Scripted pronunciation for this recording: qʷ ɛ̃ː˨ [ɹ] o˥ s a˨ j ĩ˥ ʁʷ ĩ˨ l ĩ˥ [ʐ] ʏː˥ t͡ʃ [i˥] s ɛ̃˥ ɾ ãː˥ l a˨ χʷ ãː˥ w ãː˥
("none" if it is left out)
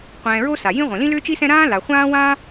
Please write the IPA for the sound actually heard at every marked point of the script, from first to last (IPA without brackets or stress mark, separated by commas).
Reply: ɹ, l, i˥